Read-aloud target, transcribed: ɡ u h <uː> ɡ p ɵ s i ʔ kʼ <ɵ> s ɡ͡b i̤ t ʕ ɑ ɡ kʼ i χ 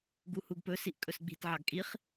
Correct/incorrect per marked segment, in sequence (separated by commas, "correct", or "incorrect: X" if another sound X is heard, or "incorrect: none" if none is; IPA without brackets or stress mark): incorrect: u, correct